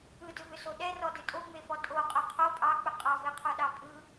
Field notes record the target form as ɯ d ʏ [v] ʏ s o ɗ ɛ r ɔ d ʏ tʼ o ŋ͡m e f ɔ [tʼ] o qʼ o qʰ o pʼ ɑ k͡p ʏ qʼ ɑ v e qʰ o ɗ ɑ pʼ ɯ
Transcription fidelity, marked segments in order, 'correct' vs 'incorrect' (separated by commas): correct, correct